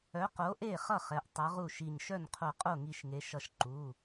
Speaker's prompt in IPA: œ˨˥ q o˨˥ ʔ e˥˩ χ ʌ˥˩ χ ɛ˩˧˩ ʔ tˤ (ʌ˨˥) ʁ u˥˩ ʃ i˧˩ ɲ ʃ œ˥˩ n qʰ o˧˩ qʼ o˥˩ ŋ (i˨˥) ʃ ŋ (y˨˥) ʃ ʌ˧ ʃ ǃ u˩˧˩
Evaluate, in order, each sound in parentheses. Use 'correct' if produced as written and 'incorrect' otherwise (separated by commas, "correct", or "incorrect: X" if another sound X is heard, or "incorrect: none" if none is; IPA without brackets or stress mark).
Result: correct, incorrect: i˧, incorrect: e˨˥